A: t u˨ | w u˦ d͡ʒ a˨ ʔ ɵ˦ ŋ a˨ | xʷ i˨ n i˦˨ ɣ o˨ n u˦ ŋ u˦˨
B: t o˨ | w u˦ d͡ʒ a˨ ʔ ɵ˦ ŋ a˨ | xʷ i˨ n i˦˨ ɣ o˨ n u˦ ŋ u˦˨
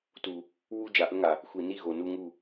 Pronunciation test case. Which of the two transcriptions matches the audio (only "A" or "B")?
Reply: A